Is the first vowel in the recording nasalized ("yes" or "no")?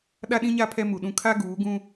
no